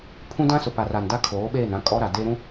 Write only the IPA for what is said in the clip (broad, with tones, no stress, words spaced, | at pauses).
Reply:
pʰũ˦dã˦ sʊ˨pa˨ra˨n da˦kʰoː˨˦ɓeː˦˨nã˦ kʼɔ˦ɾa˨de˦ɾũ˦